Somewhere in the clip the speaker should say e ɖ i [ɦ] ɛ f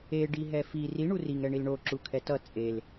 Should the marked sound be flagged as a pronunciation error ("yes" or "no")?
no